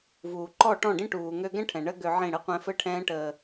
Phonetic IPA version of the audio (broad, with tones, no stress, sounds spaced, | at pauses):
v uː˨ ǃ ɔ˦˨ ʈ ɔ̃˦˨ ɖ ĩ˦ ʈ uː˨ ŋ ø˧ ɡ ɛ̃˦ ʈʰ ɛ̃˨ ɳ ə˦ ɡ ø˧ ʕ ĩ˦˨ ɽ ɘ˦ qʷ ɛ̃˦ f ɘ˦ ʈʰ ɛ̃ː˦ ʈ əː˧